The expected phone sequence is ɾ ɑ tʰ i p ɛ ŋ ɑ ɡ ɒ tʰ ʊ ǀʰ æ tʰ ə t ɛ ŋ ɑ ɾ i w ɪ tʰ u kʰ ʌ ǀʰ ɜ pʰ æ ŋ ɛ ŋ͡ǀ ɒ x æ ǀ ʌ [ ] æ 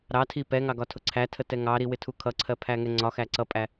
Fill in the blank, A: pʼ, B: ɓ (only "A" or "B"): A